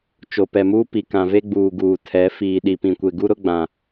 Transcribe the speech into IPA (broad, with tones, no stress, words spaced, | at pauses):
t͡ʃo˨pɛ˨muː˦ pi˨kã˨ve˦ɡ͡buː˨ ɡuː˨tʰɛ˨˦ fiː˨ ɗi˨pĩ˨kʷe˨ ɡu˦ɾʊ˦ ɡ͡bã˨